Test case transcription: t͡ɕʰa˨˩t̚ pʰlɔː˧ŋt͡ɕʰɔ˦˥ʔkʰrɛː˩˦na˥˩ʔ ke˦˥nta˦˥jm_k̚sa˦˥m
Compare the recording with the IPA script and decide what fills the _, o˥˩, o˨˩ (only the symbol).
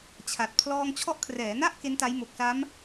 o˨˩